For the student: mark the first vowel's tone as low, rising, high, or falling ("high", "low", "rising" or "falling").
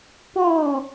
falling